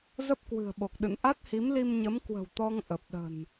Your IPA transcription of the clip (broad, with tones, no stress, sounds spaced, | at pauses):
z ə˦˥ p̚ k w ɨ̤˨˩ ə̯ ɓ o˨˩ k̚ ɗ ɨ̰˧˨ n ʔ a˦˥ t̚ h i˨˦ m l i˧ m ɲ ə˨˦ m k w ə̤˨˩ w t̪ ɔ˧ ŋ ʔ ə˨˩ p̚ ɗ ə̤˨˩ n